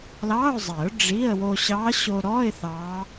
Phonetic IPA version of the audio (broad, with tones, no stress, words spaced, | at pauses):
lɑː˧˥˧ʊ̯zˤɛ˨˩˦ʊ̯ ɖ͡ʐi˧˥˧ə̯ wo˧ɕɑ˧˥ɕo˧ɾɔ˧˥˧ɪ̯ θɑ˧˥